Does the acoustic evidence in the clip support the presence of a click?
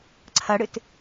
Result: yes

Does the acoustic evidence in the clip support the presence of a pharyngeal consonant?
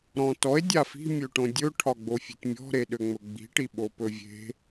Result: no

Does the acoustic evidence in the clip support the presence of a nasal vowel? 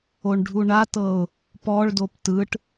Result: no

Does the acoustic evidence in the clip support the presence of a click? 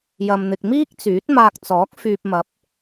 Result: no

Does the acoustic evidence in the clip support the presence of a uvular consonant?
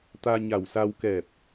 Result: no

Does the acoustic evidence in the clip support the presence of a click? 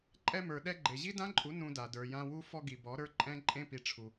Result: yes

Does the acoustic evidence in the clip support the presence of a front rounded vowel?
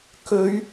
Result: no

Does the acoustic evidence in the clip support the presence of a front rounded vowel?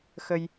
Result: no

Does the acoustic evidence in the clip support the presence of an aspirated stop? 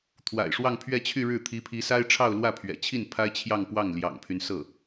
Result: yes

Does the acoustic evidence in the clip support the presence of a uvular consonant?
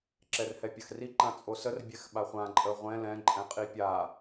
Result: yes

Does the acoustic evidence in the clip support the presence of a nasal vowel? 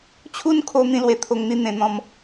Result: yes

